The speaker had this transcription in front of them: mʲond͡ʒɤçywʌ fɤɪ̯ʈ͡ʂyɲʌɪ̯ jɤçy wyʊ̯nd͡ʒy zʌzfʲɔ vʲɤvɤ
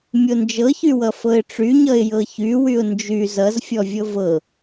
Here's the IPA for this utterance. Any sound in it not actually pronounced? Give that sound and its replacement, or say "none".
none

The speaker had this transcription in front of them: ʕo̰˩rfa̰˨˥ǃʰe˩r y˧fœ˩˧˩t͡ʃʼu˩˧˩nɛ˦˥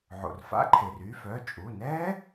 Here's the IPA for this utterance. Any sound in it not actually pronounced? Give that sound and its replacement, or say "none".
none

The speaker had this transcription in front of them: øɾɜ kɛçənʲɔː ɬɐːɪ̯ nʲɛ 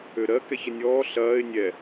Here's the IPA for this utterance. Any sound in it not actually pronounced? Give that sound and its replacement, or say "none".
none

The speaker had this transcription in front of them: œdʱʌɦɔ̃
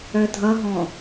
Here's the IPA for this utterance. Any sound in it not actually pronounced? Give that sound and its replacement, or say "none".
none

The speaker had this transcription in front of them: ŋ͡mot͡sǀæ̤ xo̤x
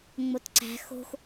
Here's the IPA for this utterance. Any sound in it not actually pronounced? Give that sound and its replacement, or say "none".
t͡s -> t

